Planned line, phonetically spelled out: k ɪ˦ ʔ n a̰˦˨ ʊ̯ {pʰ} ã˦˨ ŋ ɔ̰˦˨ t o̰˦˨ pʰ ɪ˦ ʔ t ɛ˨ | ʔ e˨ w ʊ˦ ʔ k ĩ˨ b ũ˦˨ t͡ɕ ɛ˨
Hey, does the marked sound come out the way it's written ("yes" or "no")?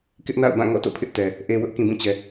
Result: no